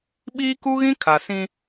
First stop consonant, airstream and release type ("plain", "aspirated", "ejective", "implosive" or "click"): implosive